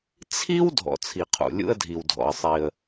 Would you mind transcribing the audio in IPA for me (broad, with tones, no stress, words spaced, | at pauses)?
t͡sʰi˥w dʱɔ̰˩t͡sʰi˩qʰṵ˩ lʲṵ˧ə̯dʱi˩wdʱɔ̰˩ə̯sˤi˩ə̯